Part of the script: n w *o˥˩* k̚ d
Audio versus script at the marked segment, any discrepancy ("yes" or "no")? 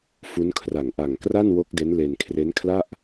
yes